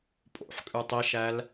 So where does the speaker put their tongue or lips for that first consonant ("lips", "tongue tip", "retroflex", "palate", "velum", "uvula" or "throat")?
lips